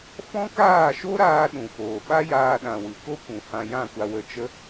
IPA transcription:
f ɔ̃˦ k aː˦˨ ʃ o˦ ɾ aː˧ ɗ ũ˨ f oː˨ ɓ a˦ j aː˧ ɗ ã˨ w ɨ˨ k o˦ kʷ ũ˨ h ã˧ j ã˦˨ kʷ a˧ w ə˧ t͡ʃ ə˦

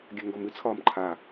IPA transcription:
ɡʲ a ŋ ɡ ɔ m ɨ t͡sʰ ɒː m ǃʰ a

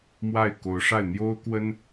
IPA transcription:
m w a˥˩ ɪ̯ k o˧˥ ʊ̯ ʂ a˥˩ ɪ̯ n̪ j o˥ ʊ̯ k w ə˥ n

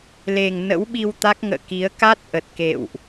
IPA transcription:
l e˨˩ ŋ n ə̰˧˥ w ɓ i˧ w t̪ a˦˥ k̚ ŋ ə̰ː˧˨ k i˨˦ ə̯ k a˦˥ t̚ ʔ ə˨˩ t̚ k ḛ˧˨ w ʔ

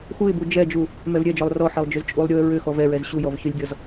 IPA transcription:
x u ɪ̯ b u d͡ʒ ɛ d͡ʒ u | m ɛ v ɾʲ ɛ d͡ʒ ɔ lˠ r ɔ ħ ɛ lˠ d͡ʒ ʏ z t͡ʃʼ u lˠ ɾʲ u ə̯ ɹ ʏ x ɔ v ɛ ɹ ɛ z ɕ u j ɔ v ç ʏ lʲ ɡʲ ɔ z

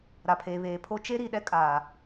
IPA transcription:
ɾ a˨ pʰ eː˨ β eː˨ pʰ o˦ t͡ʃ e˦ ɾ i˨ ɗ ɛ˦ kʼ aː˨

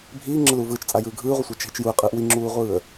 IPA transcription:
bʱ iː ŋ͡ǁ ə l uː v ɯː t͡ʃ t͡sʼ a j ɯː ɡʱ ɯː ʁʷ ə sʷ a t͡ʃ ɦ i t͡ʃ j u ə̯ qʼ ɯː ʔ w i ŋ͡ǁ uː ʁʷ ɯː ə̯

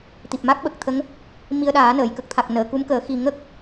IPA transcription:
t̪ i˨˩ p̚ m a˦˥ k̚ ɓ ə˨˩ k̚ t̪ʰ ə˧˥ ŋ | m i˧ ə̯ ɗ aː˨˩˦ n əː˨˩˨ j k ə˨˩ k̚ t̪ʰ a˨˩ k̚ n əː˨˩˨ k u˧˥ m k əː˨˩˦ x i˨˩ ŋ ə˦˥ k̚

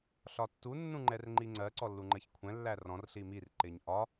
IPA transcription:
ɬ ɒ tː u nː ũ ŋ͡ǃ ɛ r ŋ͡ǃ i ŋ͡ǀ ɜ ǀ ɔ lː u ŋ͡ǃ ɜ ç kʷʰ ɛ̃ lː æ r ɔ̃ r ɬ i m i r ǃ ɪ ɲ ʔ ɒ

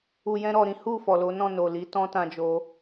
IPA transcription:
u˨ j ɛ̃˧ ɾ ɔ˨ ɾ ĩ˨˦ h u˦˨ f ɔ˨ l o˨˦ n ɔ̃˦˨ n o˨ l i˨˦ t ɔ̃˦ t ã˧ d͡ʒ o˧

